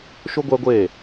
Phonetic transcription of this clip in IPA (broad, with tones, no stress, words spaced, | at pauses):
ʃʊ˦ɡʷɛ˦ɡʷeː˦˨